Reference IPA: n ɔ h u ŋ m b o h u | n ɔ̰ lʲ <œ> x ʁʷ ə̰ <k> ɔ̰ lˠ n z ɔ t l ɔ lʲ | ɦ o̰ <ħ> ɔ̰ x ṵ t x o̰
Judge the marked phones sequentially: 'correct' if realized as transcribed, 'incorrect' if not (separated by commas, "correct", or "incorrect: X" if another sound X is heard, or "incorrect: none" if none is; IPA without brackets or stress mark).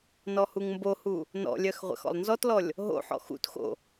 correct, incorrect: x, correct